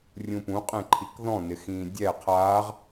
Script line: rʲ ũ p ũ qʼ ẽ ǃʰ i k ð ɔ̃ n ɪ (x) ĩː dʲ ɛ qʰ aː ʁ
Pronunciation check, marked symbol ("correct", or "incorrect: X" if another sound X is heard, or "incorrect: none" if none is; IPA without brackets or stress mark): correct